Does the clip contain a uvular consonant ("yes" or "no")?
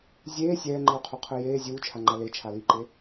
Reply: yes